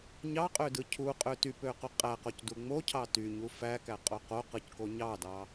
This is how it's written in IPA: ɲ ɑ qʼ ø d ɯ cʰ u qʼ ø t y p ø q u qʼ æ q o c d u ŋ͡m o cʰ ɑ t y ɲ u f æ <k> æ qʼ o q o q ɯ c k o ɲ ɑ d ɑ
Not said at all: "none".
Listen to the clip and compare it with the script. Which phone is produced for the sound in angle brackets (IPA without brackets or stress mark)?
k